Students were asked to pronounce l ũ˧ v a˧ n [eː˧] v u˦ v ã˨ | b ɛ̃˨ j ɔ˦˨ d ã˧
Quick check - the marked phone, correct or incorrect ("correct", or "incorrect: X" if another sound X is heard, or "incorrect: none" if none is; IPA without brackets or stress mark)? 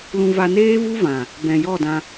incorrect: eː˦